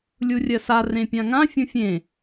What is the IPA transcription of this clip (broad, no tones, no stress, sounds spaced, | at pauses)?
lʲ u rʲ ɜ s a r ẽ pʲ ã ŋ ã fʲ ũ fʲ ẽ